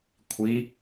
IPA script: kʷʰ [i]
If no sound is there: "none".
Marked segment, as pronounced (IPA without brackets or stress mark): i